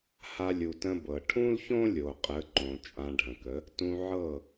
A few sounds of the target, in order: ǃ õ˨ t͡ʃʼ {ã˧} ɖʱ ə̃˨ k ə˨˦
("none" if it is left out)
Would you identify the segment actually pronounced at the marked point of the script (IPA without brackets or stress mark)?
ã˧